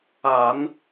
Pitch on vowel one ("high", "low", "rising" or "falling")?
low